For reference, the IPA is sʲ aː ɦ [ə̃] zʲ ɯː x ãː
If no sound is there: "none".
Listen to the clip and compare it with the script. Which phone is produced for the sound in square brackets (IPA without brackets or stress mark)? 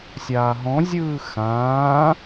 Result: ɔ̃